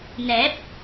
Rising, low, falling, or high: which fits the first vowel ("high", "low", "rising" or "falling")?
rising